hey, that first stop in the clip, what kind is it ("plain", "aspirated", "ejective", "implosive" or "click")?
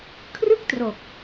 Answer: aspirated